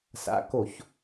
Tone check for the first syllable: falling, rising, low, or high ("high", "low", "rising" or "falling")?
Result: low